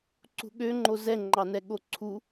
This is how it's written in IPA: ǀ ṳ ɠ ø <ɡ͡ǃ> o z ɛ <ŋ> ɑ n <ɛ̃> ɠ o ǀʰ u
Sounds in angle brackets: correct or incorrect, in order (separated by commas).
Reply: incorrect, incorrect, incorrect